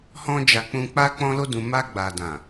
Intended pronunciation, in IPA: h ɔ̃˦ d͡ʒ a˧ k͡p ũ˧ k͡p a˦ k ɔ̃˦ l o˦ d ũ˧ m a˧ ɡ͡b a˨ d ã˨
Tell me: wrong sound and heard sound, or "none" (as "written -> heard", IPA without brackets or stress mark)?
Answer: k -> k͡p